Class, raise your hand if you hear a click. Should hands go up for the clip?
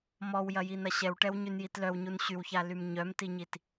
no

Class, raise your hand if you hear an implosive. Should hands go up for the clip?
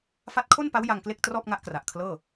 no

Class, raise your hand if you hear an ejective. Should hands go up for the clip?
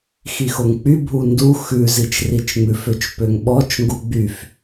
no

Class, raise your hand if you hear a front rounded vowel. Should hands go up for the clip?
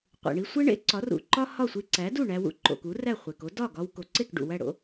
no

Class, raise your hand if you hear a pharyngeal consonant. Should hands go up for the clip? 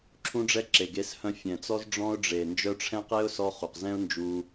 no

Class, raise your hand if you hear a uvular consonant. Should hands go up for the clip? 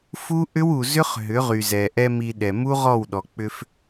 yes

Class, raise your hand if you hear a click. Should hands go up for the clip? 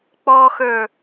no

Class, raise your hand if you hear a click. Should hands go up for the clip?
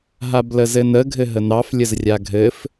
no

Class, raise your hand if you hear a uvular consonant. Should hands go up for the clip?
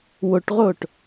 yes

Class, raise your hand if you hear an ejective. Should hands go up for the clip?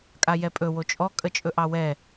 yes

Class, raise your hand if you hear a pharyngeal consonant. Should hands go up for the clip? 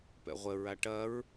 no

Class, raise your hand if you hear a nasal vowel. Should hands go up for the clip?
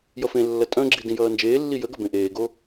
yes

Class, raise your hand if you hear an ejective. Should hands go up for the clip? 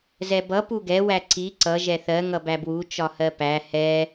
no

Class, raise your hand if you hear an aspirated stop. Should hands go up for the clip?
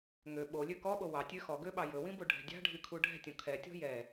yes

